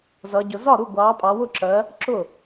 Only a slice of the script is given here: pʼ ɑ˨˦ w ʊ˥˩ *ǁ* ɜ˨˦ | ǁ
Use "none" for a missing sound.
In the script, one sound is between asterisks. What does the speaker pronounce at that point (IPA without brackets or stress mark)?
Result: ǁ